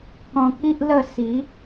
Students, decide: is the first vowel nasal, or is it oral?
nasal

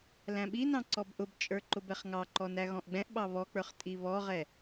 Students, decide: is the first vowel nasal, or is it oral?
nasal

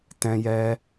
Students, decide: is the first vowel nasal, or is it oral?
nasal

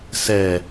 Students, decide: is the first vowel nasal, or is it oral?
oral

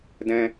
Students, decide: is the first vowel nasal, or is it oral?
nasal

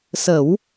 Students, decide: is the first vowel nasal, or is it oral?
oral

